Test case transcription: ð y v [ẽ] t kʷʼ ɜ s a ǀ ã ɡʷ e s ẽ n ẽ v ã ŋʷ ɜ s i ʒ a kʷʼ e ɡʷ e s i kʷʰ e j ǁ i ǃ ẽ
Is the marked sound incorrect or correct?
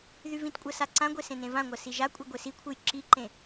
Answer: incorrect